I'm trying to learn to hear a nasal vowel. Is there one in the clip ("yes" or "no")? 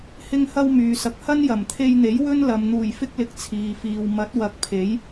no